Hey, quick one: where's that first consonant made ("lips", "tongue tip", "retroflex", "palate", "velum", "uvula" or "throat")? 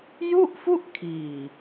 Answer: palate